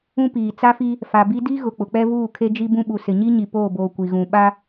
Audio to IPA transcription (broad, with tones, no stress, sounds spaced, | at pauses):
ũ˦ p iː˨ t͡s a˦ f i˦ | f a˨ b i˦ d i˦ ɣ ʊ˨ k͡p ʊ˨ k͡p ɛ˦ v uː˦˨ kʰ e˦ d͡ʒ i˦ b ũ˦ ɓ u˨ s ɪ˨ ɲ i˦ ɲ i˨ p oː˦˨ b oː˨ kʷ i˨ ɣ ũ˨ ɓ a˦